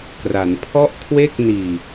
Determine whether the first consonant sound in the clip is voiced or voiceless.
voiceless